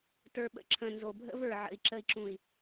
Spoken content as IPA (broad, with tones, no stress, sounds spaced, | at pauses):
t ə˞˨ ɓ ə̰˨ ǁʰ ə̃˨ n z o˨ bʱ ə̰˦ v ə˞˨ ʕ ə̰˨ i̯ ǁ ə˨ i̯ ǁ ũ˨ i̯